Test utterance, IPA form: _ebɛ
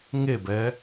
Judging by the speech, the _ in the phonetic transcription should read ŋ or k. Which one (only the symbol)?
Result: ŋ